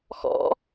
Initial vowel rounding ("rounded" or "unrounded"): rounded